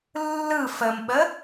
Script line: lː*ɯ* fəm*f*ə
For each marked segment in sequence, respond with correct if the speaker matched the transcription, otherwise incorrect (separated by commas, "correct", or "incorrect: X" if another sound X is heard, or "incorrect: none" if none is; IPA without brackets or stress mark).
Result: correct, incorrect: ɓ